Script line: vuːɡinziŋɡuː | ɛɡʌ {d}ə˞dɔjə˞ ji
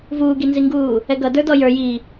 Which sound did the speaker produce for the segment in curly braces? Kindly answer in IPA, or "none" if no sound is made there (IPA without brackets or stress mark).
d